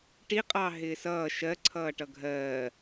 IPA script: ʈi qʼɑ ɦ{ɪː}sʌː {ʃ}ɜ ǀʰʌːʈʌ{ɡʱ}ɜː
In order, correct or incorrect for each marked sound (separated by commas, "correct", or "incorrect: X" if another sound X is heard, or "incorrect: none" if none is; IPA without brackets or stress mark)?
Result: correct, correct, correct